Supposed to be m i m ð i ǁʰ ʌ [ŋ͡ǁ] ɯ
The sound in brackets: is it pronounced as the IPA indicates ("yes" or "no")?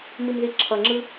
yes